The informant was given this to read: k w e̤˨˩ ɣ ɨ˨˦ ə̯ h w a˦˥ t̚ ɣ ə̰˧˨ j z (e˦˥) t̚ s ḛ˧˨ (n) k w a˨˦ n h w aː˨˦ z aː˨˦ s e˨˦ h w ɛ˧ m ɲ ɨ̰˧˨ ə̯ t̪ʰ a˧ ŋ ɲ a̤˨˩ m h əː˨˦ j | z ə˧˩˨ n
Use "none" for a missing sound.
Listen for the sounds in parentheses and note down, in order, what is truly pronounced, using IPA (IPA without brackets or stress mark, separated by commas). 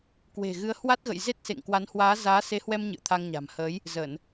e˦˥, ŋ